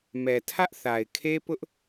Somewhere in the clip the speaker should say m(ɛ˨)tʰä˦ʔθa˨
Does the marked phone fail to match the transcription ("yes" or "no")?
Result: no